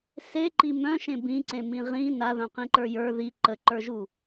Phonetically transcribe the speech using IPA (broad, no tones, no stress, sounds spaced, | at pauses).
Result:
s e ǃ i m œ̃ ʃ ẽ b ĩ ǀ ẽ m ĩ ʁ ĩ n a ð œ̃ q ĩ ǃ ə˞ j ə˞ ð i ǃ ə ǃ ə˞ ʒ u